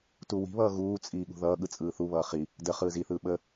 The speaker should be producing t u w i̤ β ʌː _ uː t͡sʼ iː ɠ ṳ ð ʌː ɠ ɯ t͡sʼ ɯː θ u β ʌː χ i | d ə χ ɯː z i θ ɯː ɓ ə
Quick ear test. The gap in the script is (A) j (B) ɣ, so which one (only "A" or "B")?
B